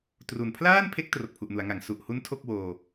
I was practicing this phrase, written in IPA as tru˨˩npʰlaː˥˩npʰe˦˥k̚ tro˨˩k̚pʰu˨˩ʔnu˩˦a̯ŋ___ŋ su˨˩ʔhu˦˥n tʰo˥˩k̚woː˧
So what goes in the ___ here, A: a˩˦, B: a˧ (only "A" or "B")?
A